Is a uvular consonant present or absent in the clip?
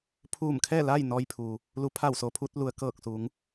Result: absent